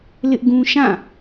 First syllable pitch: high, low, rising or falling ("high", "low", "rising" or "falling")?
high